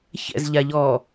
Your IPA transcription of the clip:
ç ɛ̰ z ʎ a ʎ ɔː

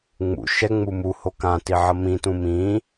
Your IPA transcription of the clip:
ŋ͡m ṵ ʃ ɛ ŋ͡m u m u h o k ã t i ʕ ʌ m ĩ t ũ m ĩ

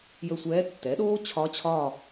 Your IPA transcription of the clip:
j ə˦˨ sʷ ɛː˧˥ tː ɛ˩˥ ɗ oː˥ t͡ɕʰ ɒ˧˥ t͡ɕʰ ɒ˦˨

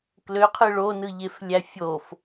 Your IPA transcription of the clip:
k l ø qʰ ɯ ɭ o n ɯ ʎ e f lʲ æ fʲ o f

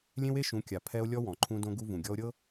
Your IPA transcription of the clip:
lʲ ẽ˦ w e˦ ʃ ũ˨˦ kʲ a˨ pʰ ɛ˦ o̯ lʲ ɔ˦ w ɔ̃˨ ǃʰ ũ˦ d õ˦ ɡ u˦ v ũ˨ ɡʲ ɔ˦ o̯ ɾʲ ɤ˦

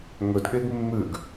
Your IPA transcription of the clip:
ŋ ɵ d ɠ e ɡ mː ʉ ɡ

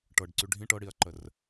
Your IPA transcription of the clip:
ʈ ɤ ɖ ǀ y ɖʱ ĩ ʈ ɤ ɽ i ɐ̯ ǃ ə r

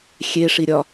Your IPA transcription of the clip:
xʲ e ʂ i ɾʲ ɒ

